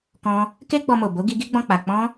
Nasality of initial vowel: nasal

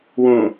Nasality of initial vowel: nasal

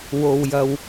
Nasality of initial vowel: oral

